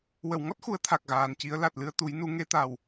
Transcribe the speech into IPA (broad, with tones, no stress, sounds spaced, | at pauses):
w ə˨˩˨ w ŋ ɔ˦˥ t̚ x u˨˩˦ ə̯ t̪ʰ a˨˩ k̚ ɣ aː˨˩ n c i˧˥ ə̯ l a˨˩ t̚ l ɨ˧ ə̯ t̪ u˨˩˦ j n u˨˩˦ ŋ e˧˥ t̪ a˨˩ w